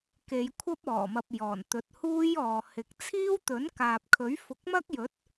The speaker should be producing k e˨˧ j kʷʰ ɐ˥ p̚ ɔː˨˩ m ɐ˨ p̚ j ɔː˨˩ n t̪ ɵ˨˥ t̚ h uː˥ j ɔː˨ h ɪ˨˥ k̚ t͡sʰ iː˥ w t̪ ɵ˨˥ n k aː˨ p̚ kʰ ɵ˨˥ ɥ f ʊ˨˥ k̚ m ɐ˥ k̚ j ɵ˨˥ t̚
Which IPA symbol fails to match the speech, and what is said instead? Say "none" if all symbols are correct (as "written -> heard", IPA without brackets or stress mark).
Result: none